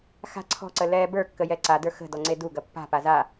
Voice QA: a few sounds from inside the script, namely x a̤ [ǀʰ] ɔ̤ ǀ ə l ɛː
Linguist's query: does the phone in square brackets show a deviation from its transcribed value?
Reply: no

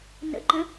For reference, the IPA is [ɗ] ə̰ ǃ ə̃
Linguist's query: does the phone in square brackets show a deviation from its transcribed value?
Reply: yes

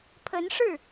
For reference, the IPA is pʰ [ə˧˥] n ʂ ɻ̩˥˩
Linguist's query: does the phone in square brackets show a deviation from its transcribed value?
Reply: no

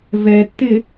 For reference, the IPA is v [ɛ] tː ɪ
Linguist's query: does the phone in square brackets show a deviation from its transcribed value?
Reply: no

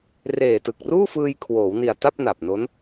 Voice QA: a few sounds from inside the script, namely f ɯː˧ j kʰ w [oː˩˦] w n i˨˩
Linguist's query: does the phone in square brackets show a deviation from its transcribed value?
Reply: no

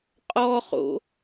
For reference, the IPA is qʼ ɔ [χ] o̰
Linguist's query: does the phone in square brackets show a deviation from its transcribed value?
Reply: no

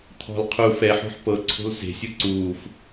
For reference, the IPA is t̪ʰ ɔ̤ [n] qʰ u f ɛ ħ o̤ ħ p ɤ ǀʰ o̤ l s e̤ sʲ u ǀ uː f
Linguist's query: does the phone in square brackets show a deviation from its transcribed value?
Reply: yes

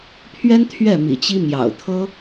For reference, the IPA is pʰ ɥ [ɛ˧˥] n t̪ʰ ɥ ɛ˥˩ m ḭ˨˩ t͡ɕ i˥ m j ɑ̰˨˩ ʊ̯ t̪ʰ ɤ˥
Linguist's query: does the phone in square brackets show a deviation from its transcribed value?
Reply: yes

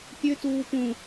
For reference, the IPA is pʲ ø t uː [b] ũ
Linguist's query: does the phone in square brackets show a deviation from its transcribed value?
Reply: yes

